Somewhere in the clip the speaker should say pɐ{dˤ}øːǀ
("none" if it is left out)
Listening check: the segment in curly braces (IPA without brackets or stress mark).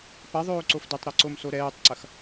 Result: ðˤ